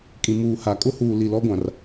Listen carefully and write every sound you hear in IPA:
kʼ ĩ˨ m uː˨ h a˨ kʼ ʊ˦ h uː˨ l i˨ l ɔ˦ ɡʷ ã˨ r

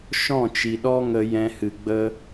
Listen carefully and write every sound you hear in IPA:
ʃ ɔ̃˦˨ t͡ʃ i˨ ɗ ɔ˦ ŋ ə˧ j ɛ̃˧ h ɨ˨ ɡ͡b ə˦

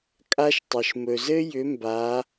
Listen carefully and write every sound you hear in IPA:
kʼ a˥ ʃ tˤ ə˩ ʃ m ɵ˩ z ɘ˥ j ʏ˩˥ m b a˩˥

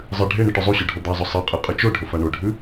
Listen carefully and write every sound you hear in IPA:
zˤ ɨ ɖʱ e ɳ ɨ ʈ ʉ zˤ u ɕ o ɖʱ o d̪ a zˤ ɵ sˤ e qʼ ɨ qʼ ɨ t͡ʃ o ɖʱ ɵ f a ɳ o ɖʱ ʉ

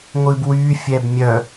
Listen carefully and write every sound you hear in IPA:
ŋʷ ɨ b w y fʲ ɛ b mʲ œ

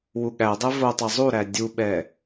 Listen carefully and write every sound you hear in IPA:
w u ɠ æ dˤ ɛ v o tˤ æ zˤ u ɾ æ dʲ u ɓ ɛ

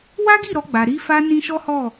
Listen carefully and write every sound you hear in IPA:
w a˦ ɡ i˦˨ ɾ ɔ˧ ɡ͡b a˨ ɾ i˧ f a˧ n ĩ˦ ʃ ɔ˦ h ɔ˦˨

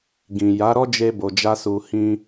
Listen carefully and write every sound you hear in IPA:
ɡ ĩ˨ j a˨˦ ɾ ɔ˦ d͡ʒ e˧ b o˨ d͡ʒ a˧ s u˨ h ĩ˧

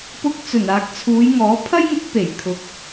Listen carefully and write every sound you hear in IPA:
p ʊ˧ k̚ t͡s ɵ˨˩ n aː˨ k̚ t͡sʰ uː˨˧ j ŋ ɔː˨˥ pʰ ɐ˥ j ŋ ʊ˨˥ k̚ p e˨˩ j kʰ ʊ˨ k̚

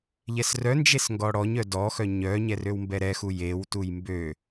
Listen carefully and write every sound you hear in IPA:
ʎ ɛ s r œ n d͡ʒ e s ŋ ɡ ɔ ɽ ɔ ɲ œ d ɔ x œ ɲ œ ɲ ɛ r ø w m b ɛ ɾ ɛ x u j e w t u j m b ø

